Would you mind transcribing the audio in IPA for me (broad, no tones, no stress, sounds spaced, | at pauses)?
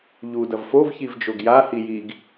ʎ u d ɐ v f o v ç i v d͡ʒ o ɡ j a h i j i ɡ